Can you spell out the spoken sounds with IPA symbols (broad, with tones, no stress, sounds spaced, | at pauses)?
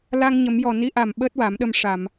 l a˧ ŋ ɲ ə˨˩˦ m j ɔ˨˩ n i˧˥ ʔ a˨˩ m ɓ əː˦˥ t̚ w a˨˩˦ m ɗ ə˧ m ʂ a˨˩˨ m